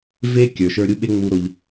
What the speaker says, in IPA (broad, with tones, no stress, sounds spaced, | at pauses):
v e˦ kʲ ə˞˨ ʃ ə˞˧ ɾʲ u˦ ɓ e˦ ŋ͡m u˧ ɾ o˧ ʎ